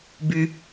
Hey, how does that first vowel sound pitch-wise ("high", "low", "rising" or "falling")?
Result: low